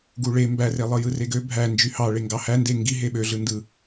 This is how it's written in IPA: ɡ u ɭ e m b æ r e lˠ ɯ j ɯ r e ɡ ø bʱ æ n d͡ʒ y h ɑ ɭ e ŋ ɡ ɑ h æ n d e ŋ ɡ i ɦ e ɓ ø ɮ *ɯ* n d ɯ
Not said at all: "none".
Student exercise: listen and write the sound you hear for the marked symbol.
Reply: ɯ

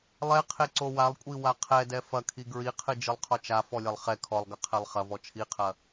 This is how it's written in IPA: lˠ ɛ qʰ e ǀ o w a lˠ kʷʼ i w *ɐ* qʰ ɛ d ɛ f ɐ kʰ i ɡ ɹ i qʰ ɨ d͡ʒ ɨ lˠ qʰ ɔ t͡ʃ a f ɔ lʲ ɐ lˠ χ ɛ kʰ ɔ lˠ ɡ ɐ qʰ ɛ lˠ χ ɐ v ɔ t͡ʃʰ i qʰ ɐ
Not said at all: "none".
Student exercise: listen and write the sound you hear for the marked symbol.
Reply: a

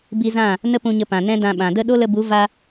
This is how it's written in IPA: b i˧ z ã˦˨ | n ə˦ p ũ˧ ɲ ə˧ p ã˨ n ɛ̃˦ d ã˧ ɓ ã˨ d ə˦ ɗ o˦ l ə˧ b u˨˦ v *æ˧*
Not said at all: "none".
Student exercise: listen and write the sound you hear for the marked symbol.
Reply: a˧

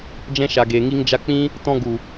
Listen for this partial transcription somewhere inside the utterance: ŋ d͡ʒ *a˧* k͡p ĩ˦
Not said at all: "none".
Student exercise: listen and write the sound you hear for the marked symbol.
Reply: a˧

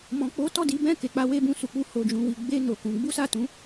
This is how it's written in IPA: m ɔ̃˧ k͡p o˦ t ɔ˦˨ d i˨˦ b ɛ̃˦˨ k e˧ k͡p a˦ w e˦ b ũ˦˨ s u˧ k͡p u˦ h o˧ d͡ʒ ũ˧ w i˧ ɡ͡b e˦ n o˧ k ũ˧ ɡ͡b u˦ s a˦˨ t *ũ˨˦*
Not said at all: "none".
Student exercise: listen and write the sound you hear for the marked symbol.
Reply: ũ˨˦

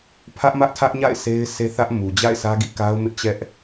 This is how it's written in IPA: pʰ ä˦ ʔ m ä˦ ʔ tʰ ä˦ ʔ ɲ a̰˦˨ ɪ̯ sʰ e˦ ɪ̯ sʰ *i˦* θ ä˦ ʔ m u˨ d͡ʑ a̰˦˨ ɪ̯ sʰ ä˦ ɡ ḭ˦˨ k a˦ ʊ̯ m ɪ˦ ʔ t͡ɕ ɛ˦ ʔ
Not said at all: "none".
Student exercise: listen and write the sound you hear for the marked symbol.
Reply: e˦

